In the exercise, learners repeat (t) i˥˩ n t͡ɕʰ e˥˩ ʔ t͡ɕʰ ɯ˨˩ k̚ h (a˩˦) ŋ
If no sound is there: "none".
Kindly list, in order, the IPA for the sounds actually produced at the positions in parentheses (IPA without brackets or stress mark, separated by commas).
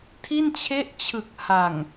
tʰ, a˨˩